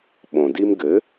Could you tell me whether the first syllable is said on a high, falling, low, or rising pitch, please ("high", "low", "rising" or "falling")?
low